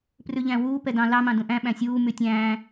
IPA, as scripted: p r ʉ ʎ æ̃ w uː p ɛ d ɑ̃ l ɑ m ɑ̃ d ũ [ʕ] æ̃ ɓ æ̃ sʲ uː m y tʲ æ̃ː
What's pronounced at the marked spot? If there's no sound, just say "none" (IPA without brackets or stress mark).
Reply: ʔ